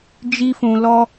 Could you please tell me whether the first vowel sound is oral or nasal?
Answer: oral